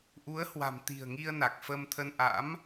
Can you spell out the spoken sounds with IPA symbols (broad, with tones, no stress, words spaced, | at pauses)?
ʔu˨˦ə̯hwa̤˨˩m t̪i̤˨˩ə̯ŋi˧ə̯na˨˩k̚ fə˧mt̪ʰə˧n ʔa̰˧˥m